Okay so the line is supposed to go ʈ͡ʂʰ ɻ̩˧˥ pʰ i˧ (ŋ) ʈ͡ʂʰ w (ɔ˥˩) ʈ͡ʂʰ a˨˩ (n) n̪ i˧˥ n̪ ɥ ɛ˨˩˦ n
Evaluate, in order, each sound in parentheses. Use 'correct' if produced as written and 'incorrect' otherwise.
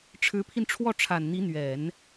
incorrect: n, correct, correct

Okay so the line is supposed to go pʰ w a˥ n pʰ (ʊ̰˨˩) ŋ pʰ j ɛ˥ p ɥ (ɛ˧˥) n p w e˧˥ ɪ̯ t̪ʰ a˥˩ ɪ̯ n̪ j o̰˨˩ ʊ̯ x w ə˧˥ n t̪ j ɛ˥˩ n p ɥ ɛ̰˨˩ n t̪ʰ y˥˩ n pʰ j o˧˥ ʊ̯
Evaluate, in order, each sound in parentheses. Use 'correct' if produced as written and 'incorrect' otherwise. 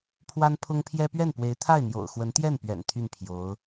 incorrect: ʊ˥, incorrect: ɛ˥˩

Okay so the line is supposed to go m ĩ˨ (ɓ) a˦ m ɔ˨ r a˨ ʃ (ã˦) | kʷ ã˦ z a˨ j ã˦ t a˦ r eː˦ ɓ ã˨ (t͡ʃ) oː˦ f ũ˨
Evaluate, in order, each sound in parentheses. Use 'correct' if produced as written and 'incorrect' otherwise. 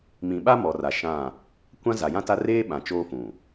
correct, incorrect: ã˦˨, correct

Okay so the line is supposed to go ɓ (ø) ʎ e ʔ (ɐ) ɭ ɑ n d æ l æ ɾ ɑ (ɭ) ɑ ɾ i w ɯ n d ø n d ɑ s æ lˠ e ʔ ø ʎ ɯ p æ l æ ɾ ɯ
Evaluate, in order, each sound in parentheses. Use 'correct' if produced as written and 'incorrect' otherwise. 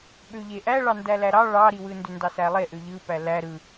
correct, incorrect: æ, correct

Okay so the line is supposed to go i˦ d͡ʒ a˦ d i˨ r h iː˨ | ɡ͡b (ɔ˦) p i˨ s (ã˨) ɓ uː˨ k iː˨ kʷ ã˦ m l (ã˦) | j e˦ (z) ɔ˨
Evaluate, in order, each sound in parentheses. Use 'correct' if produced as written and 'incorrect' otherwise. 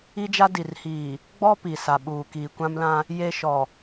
correct, incorrect: a˨, correct, incorrect: ʃ

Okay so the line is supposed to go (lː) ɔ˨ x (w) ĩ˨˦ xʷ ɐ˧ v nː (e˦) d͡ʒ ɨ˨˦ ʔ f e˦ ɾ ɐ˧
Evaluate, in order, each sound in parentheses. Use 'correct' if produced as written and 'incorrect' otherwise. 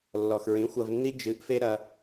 correct, incorrect: ɹ, incorrect: i˦

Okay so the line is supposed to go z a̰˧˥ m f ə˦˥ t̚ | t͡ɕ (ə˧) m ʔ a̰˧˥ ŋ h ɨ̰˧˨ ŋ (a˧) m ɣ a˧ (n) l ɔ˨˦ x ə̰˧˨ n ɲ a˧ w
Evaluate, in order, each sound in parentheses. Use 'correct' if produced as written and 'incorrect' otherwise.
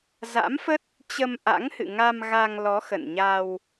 correct, correct, incorrect: ŋ

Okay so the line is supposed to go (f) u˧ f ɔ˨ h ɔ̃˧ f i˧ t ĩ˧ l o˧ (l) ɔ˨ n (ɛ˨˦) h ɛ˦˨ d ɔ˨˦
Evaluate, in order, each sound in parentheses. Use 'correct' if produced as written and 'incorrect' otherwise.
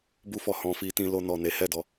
incorrect: b, incorrect: n, incorrect: e˨˦

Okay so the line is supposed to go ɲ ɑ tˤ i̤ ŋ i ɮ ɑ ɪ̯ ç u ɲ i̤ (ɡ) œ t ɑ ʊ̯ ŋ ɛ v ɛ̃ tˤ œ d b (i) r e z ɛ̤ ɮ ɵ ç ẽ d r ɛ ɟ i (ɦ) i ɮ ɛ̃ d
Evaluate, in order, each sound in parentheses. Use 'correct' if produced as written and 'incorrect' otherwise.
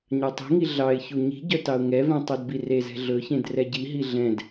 incorrect: ɟ, correct, correct

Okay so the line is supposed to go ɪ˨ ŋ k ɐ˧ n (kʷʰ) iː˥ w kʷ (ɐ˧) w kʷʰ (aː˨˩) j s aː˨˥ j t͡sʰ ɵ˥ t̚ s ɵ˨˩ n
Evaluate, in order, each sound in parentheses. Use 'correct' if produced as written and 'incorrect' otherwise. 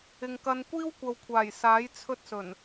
incorrect: kʷ, incorrect: ɐ˨, correct

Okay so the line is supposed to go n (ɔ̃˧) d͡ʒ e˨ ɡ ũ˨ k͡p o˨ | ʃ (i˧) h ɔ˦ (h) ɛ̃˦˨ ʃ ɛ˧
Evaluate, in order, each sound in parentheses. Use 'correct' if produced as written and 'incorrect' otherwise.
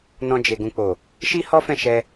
correct, incorrect: i˦, incorrect: f

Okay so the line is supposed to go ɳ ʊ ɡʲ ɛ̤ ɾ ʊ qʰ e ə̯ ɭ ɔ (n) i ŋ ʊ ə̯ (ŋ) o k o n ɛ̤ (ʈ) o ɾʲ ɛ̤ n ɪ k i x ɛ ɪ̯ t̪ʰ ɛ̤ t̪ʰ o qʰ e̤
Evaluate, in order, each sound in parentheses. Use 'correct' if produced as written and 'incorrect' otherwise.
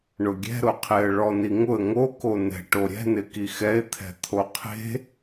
correct, correct, correct

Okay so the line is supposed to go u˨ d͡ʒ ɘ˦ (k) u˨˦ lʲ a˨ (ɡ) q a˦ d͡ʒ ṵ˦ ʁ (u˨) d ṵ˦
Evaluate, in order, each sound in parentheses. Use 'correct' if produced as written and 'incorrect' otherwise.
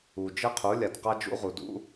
incorrect: qʰ, incorrect: d, correct

